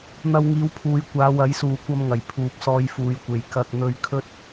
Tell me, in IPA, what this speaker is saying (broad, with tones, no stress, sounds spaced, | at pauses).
n̪ ɐ˧ w ŋ iː˨˧ w pʰ uː˨˧ j kʷ aː˨˧ w ɐ˨˥ j s uː˨ kʷ ɐ˧ m ŋ ɐ˨˩ j pʰ uː˨ p̚ s ɔː˧ j f uː˨˧ j kʷ e˨ j k ɐ˧ k̚ n̪ ɵ˧ ɥ kʰ ɵ˥ t̚